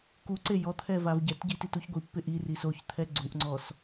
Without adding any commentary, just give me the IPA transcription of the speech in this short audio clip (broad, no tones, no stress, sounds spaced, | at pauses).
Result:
k u ǀ e j ɔ t̪ʰ ɛ v a v ɟ ɛ t ɟ i t i t u ç ɡʷ i pː ɪ ʔ i r i s o ç t̪ʰ ɛ ɡ͡ǀ u ʔ ŋ͡ǀ ɔ s